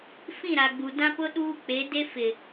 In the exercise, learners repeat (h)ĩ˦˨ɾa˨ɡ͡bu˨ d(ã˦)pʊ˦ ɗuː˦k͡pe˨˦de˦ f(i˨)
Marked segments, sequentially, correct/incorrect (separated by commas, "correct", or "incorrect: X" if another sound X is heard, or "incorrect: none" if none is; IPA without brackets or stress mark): incorrect: f, correct, incorrect: ɪ˨